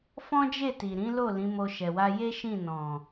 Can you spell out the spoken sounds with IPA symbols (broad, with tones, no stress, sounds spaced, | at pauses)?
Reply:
f ɔ̃˦ d͡ʒ e˦˨ t i˨ ɾ ĩ˨˦ l o˦˨ l ĩ˨˦ m o˧ ʃ ɛ˨ w a˧ j e˦ ʃ ĩ˦˨ n ɔ̃˨